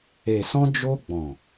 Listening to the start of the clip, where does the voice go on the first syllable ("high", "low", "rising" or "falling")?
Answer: low